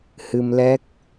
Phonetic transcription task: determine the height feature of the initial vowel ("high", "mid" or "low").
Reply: high